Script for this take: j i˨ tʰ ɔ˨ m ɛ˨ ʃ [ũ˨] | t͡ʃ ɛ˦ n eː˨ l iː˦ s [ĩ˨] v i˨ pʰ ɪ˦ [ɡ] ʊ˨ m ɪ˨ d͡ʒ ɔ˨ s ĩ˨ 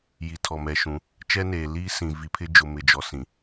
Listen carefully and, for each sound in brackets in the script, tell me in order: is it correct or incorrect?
incorrect: ũ˨˦, correct, incorrect: d͡ʒ

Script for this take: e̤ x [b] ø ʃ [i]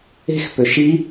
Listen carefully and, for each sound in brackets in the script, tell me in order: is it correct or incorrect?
incorrect: p, correct

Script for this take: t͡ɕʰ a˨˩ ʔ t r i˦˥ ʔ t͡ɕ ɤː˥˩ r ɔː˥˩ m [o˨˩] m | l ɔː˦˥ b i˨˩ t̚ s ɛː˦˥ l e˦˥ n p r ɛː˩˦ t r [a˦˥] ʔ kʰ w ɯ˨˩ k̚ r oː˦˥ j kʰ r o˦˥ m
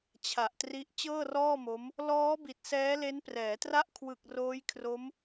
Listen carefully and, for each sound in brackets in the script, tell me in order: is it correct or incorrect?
incorrect: o˦˥, incorrect: a˥˩

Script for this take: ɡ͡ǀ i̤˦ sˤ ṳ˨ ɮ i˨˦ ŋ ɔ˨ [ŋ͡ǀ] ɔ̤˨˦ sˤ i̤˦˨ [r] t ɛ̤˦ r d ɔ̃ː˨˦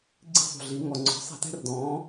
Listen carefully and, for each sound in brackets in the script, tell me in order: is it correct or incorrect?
correct, incorrect: none

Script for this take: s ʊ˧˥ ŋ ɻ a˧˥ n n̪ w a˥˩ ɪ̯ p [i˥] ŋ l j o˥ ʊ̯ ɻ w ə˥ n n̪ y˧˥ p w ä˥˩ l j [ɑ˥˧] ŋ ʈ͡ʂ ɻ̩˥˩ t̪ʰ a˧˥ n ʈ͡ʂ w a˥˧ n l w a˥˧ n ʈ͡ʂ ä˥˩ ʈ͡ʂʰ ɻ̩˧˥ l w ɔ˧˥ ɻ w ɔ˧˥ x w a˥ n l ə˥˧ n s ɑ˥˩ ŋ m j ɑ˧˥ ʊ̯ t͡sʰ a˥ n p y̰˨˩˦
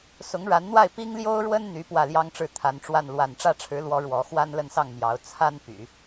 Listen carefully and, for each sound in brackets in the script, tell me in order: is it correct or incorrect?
correct, incorrect: ɑ˥

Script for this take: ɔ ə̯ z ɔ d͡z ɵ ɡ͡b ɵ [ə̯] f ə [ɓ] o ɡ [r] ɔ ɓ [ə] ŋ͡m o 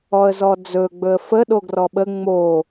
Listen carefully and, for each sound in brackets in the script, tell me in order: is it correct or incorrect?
correct, incorrect: ɗ, correct, correct

